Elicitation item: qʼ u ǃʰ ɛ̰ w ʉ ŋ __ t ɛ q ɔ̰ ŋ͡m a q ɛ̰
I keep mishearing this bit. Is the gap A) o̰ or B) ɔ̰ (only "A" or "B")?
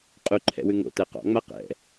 A